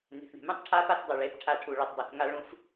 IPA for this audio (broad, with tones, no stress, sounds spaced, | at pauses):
n e̤˨ θ ɳ e̤˨ m ũ˦ tˤ ʈʰ a˦ p a˦ θ dˤ o˨ ɭ e˨˦ p ʈʰ a˦ ʈʰ u˨ ɭ i˨ tˤ dˤ u˨ θ ŋ a˦ ɭ ũ˦ f